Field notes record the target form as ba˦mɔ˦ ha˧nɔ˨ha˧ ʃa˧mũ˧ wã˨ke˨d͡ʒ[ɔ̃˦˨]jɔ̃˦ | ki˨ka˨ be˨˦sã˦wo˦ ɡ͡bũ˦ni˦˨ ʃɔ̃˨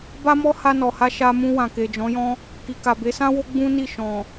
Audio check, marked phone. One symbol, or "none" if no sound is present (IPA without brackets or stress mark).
ɔ̃˨˦